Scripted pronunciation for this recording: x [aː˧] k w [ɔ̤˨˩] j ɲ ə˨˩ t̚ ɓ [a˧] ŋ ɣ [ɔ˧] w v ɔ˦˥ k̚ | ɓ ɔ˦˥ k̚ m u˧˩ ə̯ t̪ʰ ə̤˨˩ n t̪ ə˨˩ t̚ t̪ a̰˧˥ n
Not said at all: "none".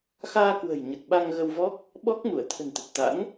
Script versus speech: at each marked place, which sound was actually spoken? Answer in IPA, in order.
aː˧, ə̤˨˩, a˧, ə˧

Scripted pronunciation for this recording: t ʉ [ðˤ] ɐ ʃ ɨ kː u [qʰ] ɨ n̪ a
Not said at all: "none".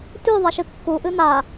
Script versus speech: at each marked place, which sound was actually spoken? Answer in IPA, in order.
ðˤ, ʔ

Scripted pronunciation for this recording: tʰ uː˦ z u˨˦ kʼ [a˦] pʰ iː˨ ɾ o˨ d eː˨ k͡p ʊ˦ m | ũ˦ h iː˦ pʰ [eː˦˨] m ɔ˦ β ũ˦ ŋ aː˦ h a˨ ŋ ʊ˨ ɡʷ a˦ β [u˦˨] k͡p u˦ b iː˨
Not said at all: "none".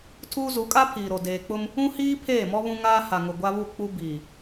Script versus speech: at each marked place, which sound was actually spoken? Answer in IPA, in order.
a˦, eː˦˨, u˦˨

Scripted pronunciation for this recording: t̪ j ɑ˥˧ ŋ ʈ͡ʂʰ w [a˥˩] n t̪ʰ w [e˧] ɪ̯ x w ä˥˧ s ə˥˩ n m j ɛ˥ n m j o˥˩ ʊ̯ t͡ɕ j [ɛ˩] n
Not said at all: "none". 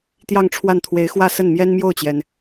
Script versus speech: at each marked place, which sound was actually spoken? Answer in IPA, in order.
a˥˩, e˧˥, ɛ˩

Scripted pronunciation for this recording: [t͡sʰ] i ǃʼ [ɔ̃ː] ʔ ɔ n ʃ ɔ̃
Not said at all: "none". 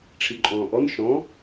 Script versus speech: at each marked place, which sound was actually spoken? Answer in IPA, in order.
ʈ͡ʂʰ, ɔ̃ː

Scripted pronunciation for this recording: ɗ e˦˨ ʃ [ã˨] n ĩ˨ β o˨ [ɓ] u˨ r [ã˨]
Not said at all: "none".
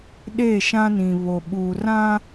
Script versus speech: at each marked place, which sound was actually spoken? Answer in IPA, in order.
ã˦, ɓ, ã˦

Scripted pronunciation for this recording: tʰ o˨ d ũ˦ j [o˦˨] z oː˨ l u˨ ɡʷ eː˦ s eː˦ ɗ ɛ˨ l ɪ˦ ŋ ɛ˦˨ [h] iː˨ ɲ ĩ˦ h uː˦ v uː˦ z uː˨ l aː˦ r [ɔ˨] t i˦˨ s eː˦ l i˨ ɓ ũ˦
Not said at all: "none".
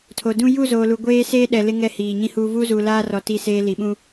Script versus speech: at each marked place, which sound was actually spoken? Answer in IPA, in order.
u˦˨, h, ɔ˨

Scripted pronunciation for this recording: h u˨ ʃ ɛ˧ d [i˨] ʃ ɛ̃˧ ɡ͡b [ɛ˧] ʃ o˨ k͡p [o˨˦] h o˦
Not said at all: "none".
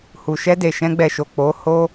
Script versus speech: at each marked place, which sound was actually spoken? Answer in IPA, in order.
e˨, ɛ˨, o˨˦

